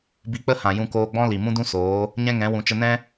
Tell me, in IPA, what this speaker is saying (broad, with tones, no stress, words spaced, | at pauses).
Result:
bi˧k͡pə˦hã˨ jũ˧koː˧ɡ͡bɔ̃˦ li˨mũ˦dũ˦ soː˨˦ | ɲɛ̃˦ŋɛ̃˨˦ wũ˨t͡ʃə˧nɛ̃˦